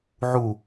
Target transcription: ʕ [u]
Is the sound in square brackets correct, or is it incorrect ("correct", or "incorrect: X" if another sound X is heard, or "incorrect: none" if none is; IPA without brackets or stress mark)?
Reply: correct